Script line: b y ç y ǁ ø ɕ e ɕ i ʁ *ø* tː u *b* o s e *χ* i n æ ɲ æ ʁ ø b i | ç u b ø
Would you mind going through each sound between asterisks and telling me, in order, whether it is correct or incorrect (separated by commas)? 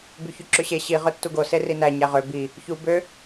correct, incorrect, incorrect